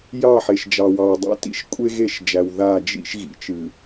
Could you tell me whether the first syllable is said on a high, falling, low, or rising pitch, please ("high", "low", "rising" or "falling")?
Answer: falling